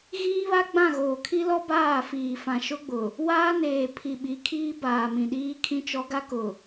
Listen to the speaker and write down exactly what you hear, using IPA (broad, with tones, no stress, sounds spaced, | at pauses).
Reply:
ɣ iː˦ β a˦ ɡ͡b ã˦˨ ɣ oː˨ kʰ i˦ l ɔ˦ b aː˦˨ f iː˨ f ã˨ ʃ ʊ˦ ɡ͡b ʊ˨ | w aː˦ n eː˨ pʰ i˨ ɓ i˨˦ kʰ iː˦ b aː˨ m ĩ˨ ɗ iː˦ kʰ ĩ˦ t͡ʃ ɔ˦ ɡ a˦ k ʊ˨